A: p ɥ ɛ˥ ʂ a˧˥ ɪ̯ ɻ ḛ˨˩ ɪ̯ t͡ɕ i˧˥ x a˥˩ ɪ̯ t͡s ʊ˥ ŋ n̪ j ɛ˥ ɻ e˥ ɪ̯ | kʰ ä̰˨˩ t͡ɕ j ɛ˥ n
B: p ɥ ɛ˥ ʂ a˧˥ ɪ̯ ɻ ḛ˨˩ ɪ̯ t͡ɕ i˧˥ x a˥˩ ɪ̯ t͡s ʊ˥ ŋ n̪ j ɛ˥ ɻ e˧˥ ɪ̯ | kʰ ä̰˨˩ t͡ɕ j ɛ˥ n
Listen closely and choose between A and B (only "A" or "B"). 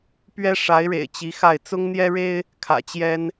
A